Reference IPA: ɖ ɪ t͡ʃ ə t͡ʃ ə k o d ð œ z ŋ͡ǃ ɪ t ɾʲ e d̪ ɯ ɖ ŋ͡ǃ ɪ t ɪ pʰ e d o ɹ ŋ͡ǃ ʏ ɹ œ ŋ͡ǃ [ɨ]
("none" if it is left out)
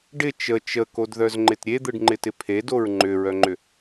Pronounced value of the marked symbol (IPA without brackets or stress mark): ʏ